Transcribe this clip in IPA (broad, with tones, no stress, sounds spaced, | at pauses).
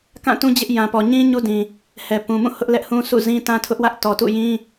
k ã˦˨ t ũ˦ d͡ʑ ɪ˦ ʔ j ã˨ p ɔ˨ ɲ ĩ˦ ɲ u˦ d ĩ˨ | h ɛ˨ p ũ˨ m ũ˦˨ h ʊ˦ ʔ l ɛ˦ ʔ h ũ˦ s ṵ˦˨ z ĩ˦ t ã˦ tʰ ʊ˦ ʔ w ä˦ ʔ t ɔ˨ t ṵ˦˨ j ĩ˦